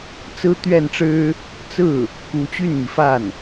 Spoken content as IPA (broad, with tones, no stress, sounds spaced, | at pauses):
t͡s ɹ̩˥ t̪ ɥ ɛ˥˩ n ʈ͡ʂ ɻ̩˥ | t͡s ɹ̩˥˩ | k u˧˥ t͡ɕ y˥˩ n m i˩ f a˥˩ n